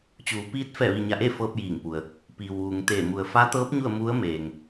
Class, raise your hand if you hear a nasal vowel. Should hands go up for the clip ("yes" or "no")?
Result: no